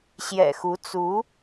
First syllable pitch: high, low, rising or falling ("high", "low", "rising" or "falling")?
low